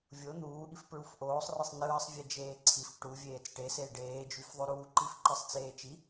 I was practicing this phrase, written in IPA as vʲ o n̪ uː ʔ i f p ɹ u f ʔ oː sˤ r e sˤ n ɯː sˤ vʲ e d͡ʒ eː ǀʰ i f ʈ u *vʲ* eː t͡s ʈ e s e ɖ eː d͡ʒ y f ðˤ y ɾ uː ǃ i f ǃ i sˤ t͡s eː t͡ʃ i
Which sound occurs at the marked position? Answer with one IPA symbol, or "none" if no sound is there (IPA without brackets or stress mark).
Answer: vʲ